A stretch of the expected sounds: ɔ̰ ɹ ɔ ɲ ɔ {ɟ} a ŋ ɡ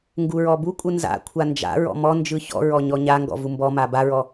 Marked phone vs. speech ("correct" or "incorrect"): incorrect